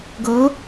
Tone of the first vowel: rising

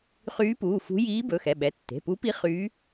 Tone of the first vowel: rising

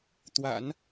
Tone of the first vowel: low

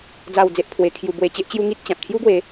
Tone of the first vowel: falling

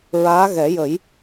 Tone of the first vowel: rising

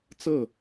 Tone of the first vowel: falling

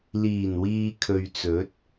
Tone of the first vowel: low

